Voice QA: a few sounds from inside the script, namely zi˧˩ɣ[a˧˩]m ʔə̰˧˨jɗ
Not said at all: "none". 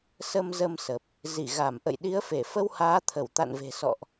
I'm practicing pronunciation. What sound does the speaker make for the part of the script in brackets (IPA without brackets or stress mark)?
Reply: a˧˩